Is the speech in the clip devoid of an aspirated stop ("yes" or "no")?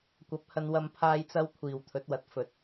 no